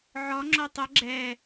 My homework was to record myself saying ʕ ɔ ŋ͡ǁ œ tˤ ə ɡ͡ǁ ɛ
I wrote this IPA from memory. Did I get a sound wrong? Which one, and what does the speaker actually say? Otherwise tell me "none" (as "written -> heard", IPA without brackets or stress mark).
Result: none